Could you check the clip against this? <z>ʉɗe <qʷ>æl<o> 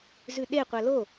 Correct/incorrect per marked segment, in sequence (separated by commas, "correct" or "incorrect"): correct, correct, correct